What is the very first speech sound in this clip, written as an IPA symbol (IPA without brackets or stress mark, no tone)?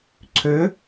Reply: ǀʰ